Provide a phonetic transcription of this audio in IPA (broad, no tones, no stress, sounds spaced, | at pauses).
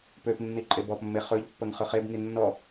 p ø p nː i ǃʼ e b ɔ p mː e χ ɵ ʎ pː ə ŋ χ ɵ χ e b ŋ i nː ɔ